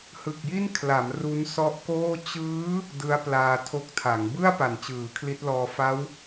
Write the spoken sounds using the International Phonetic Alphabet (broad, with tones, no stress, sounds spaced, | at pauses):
h ɯ˨˩ k̚ j i˥˩ n kʰ l a˩˦ m r u˦˥ n s ɔ˦˥ ʔ k oː˥˩ t͡ɕ ɯː˦˥ | d ɯ˦˥ a̯ p l aː˧ tʰ o˦˥ k̚ tʰ a˩˦ ŋ b ɯ˥˩ a̯ p a˨˩ n t͡ɕ ɯː˩˦ kʰ l i˦˥ t̚ l ɔː˧ f a˦˥ w